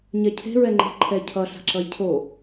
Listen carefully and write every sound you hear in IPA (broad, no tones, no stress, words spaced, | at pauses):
ɲɛcʰe̤ɹɛ ŋ͡ǃe̤ ǃʰɛ cʰʌ ɬa̤ǁʌjcʰo